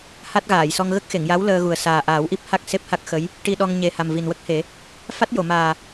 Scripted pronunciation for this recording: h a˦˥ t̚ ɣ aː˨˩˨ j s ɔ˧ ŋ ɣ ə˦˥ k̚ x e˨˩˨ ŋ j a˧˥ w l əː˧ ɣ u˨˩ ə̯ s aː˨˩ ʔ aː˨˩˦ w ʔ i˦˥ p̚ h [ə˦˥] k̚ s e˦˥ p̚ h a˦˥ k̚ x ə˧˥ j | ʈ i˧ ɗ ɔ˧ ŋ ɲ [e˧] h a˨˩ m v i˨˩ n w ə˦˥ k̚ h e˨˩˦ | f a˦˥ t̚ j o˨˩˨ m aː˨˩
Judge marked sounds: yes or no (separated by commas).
no, no